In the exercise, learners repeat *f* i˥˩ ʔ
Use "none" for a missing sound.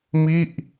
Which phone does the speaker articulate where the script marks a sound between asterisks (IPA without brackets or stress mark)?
m